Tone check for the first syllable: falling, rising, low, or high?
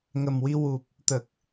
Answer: low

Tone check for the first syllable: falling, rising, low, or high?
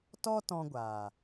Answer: high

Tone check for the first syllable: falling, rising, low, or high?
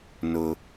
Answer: high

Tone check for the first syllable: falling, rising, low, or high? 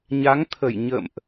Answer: rising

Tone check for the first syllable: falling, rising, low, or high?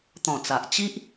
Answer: low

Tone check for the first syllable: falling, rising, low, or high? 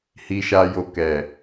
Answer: low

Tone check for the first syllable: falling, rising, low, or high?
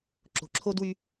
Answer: low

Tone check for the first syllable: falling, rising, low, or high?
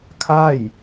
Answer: falling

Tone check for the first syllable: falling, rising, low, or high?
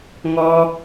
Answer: high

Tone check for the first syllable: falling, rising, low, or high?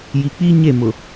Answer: low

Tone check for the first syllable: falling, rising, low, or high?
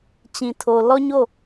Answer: low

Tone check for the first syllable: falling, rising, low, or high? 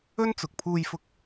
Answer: high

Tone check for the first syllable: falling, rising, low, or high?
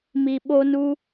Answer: low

